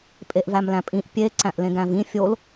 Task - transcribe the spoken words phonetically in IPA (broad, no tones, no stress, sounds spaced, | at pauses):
pʼ e ʔ v æ m l æ̃ pʼ ĩ ʔ pʲ e ǀ æ̃ ʔ l ẽ ɡ æ̃ v ĩ fʲ o l